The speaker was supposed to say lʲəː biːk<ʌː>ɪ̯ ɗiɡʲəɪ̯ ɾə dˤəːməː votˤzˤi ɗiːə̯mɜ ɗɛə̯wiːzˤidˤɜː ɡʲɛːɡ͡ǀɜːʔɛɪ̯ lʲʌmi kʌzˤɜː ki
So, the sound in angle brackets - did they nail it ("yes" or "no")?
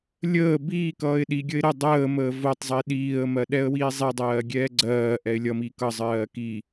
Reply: yes